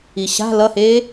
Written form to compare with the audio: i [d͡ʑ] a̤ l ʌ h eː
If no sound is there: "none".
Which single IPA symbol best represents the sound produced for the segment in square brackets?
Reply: ɕ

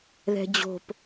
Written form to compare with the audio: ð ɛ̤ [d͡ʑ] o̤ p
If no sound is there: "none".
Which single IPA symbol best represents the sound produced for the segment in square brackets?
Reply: d͡ʑ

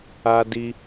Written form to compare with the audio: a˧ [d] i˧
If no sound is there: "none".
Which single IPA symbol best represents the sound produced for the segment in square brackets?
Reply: d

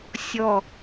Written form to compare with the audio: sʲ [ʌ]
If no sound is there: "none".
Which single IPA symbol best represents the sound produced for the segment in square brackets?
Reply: ɔ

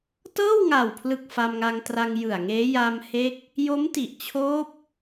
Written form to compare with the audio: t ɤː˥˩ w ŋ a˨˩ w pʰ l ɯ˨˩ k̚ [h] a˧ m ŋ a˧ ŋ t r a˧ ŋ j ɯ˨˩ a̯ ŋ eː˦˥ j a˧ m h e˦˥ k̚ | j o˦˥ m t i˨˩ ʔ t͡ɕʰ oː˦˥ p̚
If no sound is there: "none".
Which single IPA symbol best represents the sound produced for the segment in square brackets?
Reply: f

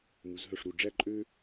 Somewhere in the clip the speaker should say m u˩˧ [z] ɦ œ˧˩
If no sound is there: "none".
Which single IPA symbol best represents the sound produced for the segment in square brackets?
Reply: z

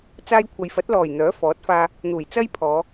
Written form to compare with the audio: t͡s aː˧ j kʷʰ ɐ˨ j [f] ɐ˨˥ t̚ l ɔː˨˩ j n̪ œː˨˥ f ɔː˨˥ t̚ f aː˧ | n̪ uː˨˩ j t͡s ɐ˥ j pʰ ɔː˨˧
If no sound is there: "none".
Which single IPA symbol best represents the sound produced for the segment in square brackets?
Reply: f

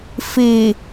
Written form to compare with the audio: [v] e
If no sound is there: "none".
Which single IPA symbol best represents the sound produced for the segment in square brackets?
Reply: f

